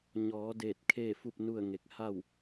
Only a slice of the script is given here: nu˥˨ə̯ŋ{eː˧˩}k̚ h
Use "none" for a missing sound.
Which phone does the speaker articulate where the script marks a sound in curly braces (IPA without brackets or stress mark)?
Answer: e˧˩